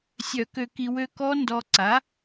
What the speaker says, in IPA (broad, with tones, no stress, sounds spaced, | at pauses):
sʲ œ˨˩˦ k ø˧ k i˧ w ø˦˥ k ɔ˦˥ n d ɔ˧ ǀ a˩˥